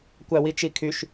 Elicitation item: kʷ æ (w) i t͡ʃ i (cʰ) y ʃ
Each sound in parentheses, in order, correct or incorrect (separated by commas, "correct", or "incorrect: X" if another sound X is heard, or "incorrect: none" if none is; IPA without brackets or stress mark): correct, incorrect: kʰ